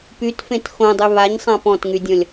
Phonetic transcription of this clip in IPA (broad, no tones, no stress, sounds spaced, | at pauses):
p y t f ẽ t x õ dˤ y β a ɲ sˤ ã p ɔ̃ t ŋ y dʲ ɔ̃ lʲ